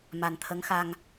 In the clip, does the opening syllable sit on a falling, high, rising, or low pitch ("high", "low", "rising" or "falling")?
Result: low